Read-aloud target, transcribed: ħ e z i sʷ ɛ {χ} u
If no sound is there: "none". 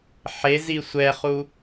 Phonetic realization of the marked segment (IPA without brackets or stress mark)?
χ